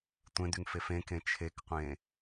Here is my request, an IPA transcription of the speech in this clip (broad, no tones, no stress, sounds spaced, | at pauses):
tʷ ẽ d y ŋ f e f ẽ k ẽ t͡ʃʰ e k qʷ ẽ